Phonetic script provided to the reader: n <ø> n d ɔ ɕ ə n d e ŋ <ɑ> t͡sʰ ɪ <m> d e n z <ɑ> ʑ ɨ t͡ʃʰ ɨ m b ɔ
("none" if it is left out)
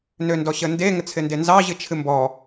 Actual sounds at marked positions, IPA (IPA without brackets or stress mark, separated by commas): ø, ə, n, ɑ